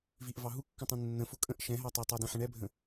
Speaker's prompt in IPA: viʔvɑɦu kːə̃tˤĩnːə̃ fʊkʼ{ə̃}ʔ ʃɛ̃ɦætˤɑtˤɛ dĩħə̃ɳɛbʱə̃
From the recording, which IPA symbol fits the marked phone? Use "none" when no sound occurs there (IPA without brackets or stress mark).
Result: ə̃